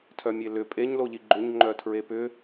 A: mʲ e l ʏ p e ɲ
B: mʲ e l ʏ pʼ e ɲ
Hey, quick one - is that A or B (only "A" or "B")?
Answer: B